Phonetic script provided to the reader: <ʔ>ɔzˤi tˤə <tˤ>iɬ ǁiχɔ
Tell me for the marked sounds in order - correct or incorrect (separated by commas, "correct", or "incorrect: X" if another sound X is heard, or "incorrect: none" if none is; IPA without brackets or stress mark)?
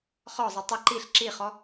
incorrect: χ, incorrect: ǃ